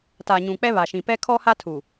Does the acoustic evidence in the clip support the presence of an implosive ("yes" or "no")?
no